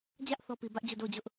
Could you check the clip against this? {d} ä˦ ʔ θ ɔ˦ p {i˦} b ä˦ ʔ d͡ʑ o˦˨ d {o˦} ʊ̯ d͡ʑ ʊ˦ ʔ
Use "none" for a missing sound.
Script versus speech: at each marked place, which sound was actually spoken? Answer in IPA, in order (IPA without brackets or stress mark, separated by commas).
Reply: d͡ʑ, i˨, o˦˨